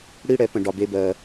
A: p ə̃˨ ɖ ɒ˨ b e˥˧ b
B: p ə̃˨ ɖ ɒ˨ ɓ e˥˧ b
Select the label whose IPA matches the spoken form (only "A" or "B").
A